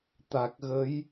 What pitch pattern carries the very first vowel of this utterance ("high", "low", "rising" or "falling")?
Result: low